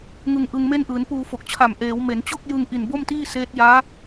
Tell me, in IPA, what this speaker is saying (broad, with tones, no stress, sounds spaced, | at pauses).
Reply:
ŋ ɯ˧ ŋ ʔ ɯ˧ ŋ m e˥˩ n ʔ ɯː˩˦ n p uː˧ f o˨˩ k̚ t͡ɕʰ a˨˩ m ʔ eː˩˦ w m e˩˦ n t͡ɕ o˥˩ k̚ j ɯ˧ ŋ ʔ i˨˩ n b o˥˩ m t iː˥˩ s eː˦˥ t̚ j aː˦˥